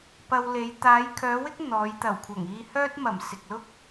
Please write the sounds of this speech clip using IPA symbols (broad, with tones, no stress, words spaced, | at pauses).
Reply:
pɐ˧wle˨˧j t̪aː˨˧jkʰœː˨˧wɪ˥k̚ n̪ɔː˨˧j t̪ɐ˨˩wkʷʰɐ˨˩ŋiː˧ hœː˥t̚mɐ˨˩m sɪ˨k̚lʊ˥k̚